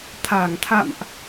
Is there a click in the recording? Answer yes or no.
no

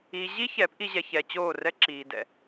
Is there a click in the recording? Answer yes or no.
yes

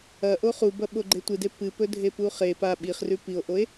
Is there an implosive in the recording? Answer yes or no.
yes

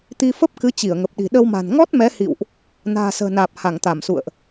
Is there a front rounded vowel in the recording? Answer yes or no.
no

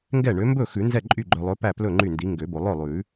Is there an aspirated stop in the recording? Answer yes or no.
no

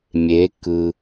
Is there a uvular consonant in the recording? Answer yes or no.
no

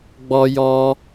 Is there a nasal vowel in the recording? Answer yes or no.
no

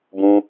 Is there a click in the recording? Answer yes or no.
no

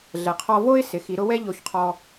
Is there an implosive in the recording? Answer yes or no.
no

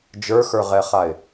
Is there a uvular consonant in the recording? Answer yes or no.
yes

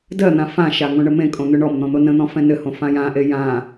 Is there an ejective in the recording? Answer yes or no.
yes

